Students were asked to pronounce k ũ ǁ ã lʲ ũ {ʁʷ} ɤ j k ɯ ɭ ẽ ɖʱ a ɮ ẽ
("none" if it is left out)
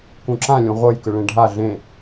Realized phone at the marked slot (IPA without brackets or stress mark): ʁʷ